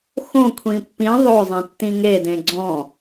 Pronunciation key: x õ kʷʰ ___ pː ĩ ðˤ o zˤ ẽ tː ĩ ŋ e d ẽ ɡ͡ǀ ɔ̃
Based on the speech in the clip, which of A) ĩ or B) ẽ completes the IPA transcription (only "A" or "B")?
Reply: A